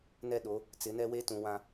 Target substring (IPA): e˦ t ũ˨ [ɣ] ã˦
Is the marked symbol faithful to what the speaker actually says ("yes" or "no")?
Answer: no